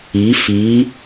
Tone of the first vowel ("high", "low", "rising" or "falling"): rising